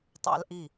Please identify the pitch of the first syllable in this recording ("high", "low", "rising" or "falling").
high